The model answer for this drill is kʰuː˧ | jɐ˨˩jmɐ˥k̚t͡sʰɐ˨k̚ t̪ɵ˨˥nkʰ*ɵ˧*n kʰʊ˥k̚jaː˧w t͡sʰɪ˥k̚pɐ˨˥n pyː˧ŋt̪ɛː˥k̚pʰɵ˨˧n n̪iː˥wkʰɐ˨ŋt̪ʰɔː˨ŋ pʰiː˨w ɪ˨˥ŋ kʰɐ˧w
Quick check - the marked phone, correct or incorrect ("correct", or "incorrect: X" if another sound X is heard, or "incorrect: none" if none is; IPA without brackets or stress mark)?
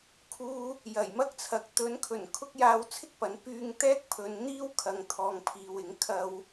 incorrect: ɵ˨˩